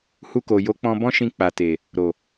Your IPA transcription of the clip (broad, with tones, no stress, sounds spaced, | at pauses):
h u˧ k o˨ j o˨˦ k͡p ɔ̃˧ b ɔ̃˦ ʃ ĩ˧ k͡p a˨ t e˨ | ɾ o˨